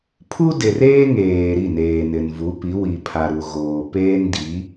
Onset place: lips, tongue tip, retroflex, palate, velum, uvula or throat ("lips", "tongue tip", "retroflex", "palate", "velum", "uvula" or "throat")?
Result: lips